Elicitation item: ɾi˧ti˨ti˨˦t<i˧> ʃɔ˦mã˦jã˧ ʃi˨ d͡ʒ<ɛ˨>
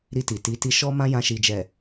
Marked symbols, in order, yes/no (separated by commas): yes, yes